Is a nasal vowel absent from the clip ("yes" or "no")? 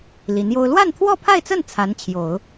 yes